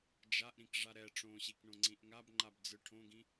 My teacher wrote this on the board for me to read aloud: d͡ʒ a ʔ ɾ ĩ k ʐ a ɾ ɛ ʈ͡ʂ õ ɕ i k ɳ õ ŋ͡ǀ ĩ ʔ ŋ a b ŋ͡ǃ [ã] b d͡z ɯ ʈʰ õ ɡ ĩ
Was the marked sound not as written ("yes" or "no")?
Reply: yes